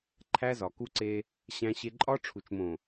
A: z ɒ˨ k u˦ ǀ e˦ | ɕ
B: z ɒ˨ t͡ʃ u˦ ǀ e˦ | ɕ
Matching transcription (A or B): A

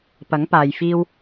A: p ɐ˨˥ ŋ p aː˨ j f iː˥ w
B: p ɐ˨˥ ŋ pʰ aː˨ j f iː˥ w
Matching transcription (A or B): A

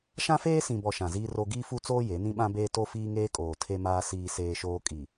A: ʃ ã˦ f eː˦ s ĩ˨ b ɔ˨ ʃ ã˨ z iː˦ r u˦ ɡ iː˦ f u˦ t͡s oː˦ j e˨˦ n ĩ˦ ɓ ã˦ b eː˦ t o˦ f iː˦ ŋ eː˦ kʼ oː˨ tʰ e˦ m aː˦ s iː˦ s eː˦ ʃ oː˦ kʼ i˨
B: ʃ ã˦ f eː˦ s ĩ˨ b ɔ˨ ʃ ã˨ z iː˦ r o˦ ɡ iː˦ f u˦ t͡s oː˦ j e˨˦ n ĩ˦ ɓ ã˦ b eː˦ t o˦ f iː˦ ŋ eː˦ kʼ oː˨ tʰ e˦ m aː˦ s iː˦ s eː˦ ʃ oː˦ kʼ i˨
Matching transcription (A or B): B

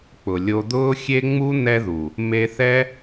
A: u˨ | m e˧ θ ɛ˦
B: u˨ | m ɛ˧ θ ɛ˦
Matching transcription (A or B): A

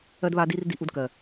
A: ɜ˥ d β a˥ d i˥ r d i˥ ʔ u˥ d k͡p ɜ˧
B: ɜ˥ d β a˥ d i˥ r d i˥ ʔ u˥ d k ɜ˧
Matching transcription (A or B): B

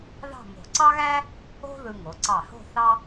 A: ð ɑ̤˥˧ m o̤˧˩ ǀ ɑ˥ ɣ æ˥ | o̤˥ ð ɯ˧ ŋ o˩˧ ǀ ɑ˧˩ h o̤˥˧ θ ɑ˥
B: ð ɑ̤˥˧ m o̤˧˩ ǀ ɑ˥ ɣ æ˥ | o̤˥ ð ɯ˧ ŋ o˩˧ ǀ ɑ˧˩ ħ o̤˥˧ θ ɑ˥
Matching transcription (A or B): A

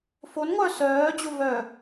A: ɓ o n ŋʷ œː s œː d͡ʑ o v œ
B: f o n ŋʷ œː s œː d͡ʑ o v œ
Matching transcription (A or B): B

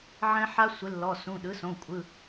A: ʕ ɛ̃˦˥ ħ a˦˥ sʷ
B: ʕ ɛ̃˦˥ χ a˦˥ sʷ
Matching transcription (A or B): A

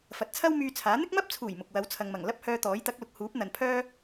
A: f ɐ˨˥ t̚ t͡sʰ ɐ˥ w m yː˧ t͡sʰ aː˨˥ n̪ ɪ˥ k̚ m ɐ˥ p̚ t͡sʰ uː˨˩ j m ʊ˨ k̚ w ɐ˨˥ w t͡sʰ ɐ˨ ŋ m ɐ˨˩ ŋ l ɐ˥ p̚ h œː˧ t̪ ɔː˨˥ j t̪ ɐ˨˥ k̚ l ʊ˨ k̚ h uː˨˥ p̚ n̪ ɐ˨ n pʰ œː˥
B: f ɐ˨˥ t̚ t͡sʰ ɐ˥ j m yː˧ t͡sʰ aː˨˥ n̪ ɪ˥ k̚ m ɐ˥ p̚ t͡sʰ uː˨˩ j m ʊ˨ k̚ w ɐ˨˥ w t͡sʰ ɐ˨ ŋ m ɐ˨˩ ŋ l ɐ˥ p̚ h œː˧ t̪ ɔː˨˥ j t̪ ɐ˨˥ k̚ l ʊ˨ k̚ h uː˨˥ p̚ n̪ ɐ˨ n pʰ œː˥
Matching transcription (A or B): A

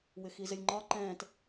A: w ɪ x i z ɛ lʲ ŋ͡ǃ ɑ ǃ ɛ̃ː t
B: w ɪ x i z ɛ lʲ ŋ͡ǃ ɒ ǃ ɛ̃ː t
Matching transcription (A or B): B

